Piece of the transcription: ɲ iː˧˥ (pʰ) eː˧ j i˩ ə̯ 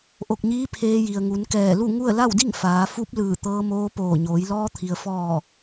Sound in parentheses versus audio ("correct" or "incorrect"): correct